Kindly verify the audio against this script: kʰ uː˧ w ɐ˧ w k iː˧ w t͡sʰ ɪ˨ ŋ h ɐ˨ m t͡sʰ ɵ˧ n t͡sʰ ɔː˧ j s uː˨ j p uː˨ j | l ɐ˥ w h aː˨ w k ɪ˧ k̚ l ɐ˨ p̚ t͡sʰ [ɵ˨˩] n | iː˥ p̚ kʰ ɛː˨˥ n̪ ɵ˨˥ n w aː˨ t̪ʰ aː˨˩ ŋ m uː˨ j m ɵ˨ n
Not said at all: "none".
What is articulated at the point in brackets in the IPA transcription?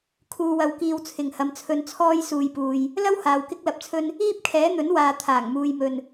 ɵ˧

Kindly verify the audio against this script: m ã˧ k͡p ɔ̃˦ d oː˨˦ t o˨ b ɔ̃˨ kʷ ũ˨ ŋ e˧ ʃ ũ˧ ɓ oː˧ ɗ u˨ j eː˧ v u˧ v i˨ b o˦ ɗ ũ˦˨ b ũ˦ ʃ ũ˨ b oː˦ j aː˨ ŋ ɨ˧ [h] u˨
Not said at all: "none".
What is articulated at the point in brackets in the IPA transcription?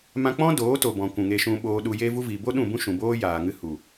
h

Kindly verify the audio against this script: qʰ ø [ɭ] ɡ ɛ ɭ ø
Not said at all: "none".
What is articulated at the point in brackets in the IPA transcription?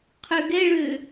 none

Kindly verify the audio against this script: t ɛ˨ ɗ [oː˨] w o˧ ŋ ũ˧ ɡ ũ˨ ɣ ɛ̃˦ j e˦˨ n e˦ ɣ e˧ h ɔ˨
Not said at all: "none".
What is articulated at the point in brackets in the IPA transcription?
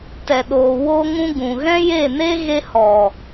oː˨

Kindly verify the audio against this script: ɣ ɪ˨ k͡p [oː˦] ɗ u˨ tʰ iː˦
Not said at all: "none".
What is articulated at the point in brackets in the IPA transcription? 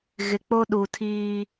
o˦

